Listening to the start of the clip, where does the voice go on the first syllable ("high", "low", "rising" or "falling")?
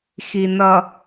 low